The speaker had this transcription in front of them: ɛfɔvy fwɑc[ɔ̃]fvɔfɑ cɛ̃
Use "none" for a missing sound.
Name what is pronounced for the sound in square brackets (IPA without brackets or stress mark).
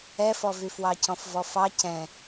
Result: ɔ̃